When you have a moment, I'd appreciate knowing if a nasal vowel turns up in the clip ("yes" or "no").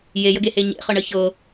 no